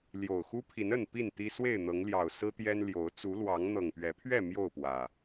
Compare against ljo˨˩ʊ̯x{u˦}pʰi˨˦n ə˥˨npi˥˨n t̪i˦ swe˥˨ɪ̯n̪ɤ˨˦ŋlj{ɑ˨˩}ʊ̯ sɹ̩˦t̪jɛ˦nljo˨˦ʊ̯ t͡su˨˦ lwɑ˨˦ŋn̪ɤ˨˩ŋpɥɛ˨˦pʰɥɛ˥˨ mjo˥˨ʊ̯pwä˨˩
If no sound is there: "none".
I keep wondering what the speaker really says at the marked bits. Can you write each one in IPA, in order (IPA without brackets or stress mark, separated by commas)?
u˦, ɑ˨˩